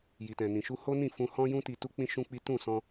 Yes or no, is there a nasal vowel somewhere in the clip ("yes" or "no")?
yes